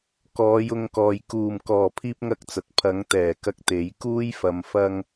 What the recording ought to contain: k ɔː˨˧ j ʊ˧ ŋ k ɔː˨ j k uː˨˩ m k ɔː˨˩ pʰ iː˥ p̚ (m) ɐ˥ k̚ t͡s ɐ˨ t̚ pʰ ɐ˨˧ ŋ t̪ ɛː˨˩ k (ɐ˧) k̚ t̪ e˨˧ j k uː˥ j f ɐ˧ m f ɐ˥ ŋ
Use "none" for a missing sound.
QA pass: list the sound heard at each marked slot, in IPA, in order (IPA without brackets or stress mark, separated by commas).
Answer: ŋ, ɐ˧